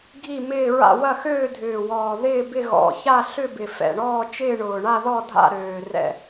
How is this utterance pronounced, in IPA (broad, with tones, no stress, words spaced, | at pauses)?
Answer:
ɡʱi˥˧ mɪː˥˧ɹa̰˥˧ wɐ˥˧xøː˥˧dʱʏː˨˩wɔː˨˩ ðɪː˥˧bɪ˥˧ ɣɔ̰˨˩ça˥˧ɬʏ˥˧ bɪ˨˩fɛ̰˨˩ɳɔː˥˧ t͡ʃɪː˥˧ɳʊː˨˩ ɳa˥˧ðɔ˥˧ dʱa̰˥˧ɾøː˨˩ rɛ̰˨˩